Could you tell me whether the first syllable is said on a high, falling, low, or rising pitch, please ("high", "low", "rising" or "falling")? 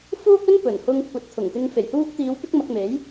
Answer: high